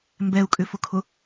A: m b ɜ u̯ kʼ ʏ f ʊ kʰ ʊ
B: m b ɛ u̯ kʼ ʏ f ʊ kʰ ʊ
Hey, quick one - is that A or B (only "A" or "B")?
B